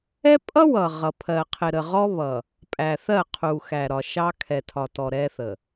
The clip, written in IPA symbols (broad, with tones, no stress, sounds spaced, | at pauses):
ɛ˦ pʼ ʌ˦ w ʌ˨ ʁ ʌ˨ pʰ ɜ˨ qʰ ɪ˨ ɾ ə˨ ʁ ɔ˦ β ʌ˨ | pʼ æ˨ θ ɜ˦˨ qʰ u˨ x æ˨ ɾ ɒ˨ ʃ ɑ˦ kʰ ɛ˨ tʰ ɒ˨ t ɔ˨ ɾ ɛ˦ θ ə˨